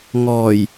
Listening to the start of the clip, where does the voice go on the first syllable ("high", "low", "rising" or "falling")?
low